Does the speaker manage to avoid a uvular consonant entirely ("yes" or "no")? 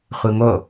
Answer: no